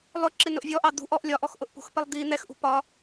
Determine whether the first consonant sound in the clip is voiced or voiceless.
voiced